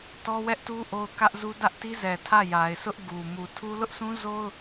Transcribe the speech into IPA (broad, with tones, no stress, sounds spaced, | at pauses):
t ɔ˦ w ɛ˦ ʔ t u˦ ʔ o˦ ʊ̯ k ä˦ ʔ z u˦ d ä˦ ʔ t i˦ z ɛ˨ tʰ ä˦˨ j a˨ ɪ̯ s ʊ˦ ʔ ɡ u˨ m u˨ tʰ u˦ l ʊ˦ ʔ s ũ˦ z o˦ ʊ̯